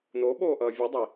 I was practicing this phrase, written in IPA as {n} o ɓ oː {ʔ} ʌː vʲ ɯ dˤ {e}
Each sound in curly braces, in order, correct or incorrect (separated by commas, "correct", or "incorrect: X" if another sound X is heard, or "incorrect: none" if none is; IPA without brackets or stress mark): correct, correct, incorrect: i